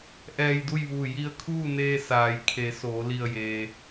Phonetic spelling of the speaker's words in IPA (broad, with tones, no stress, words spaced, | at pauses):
ʔɛː˧jdu˥˨jʋuː˧˩ ji˧ə̯kʰuː˥˨neː˧ saː˩jkʰe˩˧ soː˩˧li˧˩ə̯jeː˩